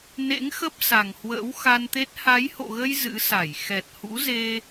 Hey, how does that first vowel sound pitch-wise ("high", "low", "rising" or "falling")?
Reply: rising